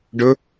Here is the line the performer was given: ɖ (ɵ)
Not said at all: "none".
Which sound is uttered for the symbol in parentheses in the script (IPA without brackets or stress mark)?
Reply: ɵ